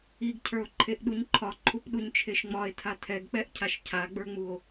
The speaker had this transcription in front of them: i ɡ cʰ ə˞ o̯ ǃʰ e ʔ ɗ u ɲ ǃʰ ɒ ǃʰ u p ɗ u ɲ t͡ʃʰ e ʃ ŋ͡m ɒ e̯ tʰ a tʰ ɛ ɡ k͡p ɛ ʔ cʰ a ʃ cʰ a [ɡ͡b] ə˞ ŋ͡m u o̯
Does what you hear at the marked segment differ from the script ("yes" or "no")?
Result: no